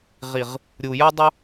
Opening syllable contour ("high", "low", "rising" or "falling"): low